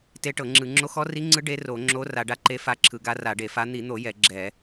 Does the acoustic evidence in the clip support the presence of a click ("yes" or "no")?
yes